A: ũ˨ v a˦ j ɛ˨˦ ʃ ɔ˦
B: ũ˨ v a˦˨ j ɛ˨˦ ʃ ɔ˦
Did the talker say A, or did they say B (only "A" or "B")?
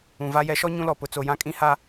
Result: A